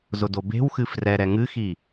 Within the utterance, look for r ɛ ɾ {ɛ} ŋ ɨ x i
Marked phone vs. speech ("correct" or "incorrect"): correct